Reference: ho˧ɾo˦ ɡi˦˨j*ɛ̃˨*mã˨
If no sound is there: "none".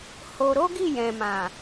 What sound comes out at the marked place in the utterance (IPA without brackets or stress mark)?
ɛ̃˨